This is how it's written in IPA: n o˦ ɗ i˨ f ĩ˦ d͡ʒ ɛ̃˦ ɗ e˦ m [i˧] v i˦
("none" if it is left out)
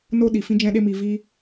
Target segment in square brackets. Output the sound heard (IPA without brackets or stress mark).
i˧